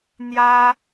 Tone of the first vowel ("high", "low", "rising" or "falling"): high